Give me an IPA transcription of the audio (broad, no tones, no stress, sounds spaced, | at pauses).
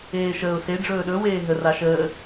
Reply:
eː ʃ əː ʊ̯ s e ɖ͡ʐ ɵː ɗ ɵ w eː ɦ ə r a ʃ əː